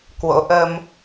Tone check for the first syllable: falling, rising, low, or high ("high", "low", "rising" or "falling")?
rising